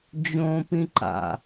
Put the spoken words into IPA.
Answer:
d͡ʑ õ p ĩ ǃ a̰

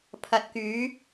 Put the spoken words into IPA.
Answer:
pʰ ɐ˨ t̚ k yː˨˧

